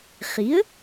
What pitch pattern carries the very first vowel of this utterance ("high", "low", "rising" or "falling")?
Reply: rising